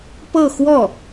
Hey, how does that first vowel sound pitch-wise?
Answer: falling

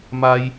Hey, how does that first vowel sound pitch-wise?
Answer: high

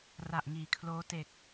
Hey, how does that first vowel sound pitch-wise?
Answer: low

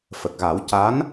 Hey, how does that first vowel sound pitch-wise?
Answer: low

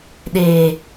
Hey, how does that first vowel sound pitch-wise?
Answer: low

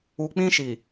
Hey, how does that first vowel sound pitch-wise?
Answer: low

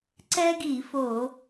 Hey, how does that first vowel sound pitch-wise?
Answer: high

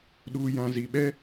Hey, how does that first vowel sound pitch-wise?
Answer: low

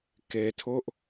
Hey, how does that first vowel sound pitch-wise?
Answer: low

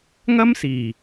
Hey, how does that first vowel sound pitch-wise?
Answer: high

